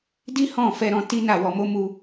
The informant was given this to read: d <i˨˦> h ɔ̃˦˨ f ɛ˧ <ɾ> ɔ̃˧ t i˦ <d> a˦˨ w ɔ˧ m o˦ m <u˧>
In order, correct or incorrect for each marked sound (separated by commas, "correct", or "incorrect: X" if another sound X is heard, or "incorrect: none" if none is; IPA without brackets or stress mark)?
incorrect: i˦, correct, incorrect: n, correct